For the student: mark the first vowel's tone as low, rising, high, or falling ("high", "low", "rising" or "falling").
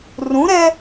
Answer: rising